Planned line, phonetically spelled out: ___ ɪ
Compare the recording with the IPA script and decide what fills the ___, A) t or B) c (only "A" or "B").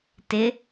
A